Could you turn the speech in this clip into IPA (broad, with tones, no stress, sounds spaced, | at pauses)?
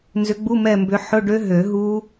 n z ʏ˨˦ ɡ͡b u˧˥˧ m ɛ˦˨ m b ʏ˨˦ ħ ʊ˧˥˧ ɖ ø˦˥ ɦ ø˨˩˦ ɦ u˦˥